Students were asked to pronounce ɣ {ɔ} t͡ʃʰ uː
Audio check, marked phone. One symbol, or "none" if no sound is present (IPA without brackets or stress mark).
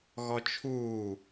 ɔ